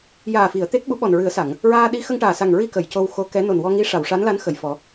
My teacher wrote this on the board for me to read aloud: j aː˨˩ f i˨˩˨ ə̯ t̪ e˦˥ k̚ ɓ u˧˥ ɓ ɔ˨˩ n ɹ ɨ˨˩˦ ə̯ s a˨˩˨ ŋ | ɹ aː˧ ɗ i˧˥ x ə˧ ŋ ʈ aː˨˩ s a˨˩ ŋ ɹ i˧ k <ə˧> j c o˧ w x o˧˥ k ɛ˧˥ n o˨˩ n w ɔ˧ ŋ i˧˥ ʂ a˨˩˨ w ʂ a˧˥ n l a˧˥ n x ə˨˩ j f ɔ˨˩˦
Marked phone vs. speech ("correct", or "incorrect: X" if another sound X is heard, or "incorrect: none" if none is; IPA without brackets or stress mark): incorrect: ə˨˩˨